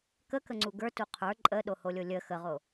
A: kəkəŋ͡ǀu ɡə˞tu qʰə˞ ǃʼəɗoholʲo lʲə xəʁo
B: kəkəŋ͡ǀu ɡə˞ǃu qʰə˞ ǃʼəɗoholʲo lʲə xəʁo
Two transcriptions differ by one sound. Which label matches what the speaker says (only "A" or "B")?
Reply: A